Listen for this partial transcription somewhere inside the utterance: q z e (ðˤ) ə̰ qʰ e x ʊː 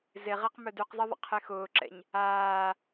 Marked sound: correct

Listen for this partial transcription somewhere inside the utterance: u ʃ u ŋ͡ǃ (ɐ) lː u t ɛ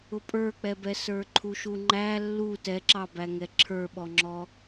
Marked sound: incorrect: æ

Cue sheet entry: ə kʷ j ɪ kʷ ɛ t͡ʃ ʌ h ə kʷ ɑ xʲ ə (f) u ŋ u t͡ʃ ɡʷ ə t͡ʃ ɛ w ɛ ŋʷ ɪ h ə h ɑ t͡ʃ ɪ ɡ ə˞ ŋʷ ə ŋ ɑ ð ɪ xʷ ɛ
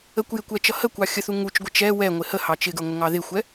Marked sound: incorrect: θ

